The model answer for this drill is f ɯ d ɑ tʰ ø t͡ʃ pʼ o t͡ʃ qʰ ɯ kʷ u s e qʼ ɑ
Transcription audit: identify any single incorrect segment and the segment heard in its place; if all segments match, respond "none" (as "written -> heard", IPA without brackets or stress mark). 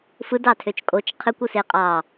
pʼ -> kʼ